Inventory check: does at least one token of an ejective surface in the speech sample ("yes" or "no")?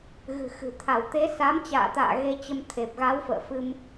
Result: no